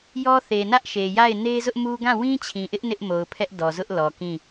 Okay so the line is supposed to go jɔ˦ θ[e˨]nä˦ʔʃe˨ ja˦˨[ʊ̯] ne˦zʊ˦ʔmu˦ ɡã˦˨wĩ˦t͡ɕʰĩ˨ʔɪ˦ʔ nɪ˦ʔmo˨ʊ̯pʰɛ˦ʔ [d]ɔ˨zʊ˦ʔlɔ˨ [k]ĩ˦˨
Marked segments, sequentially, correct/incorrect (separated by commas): correct, incorrect, correct, correct